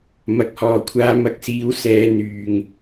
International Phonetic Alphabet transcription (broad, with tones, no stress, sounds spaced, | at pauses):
m ɐ˨ k̚ h ɔː˨ kʷʰ aː˧ m ɐ˨˥ k̚ s iː˨˥ w s ɛː˨˧ n̪ yː˨ ŋ